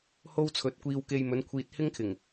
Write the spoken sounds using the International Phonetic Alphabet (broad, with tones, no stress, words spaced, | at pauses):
ho˥wt͡sʰɵ˨˥t̚kʷiː˧wke˧j mɵ˨˧nkʷʰiː˨t̚ hɪ˥ŋkʰɪ˨˩ŋ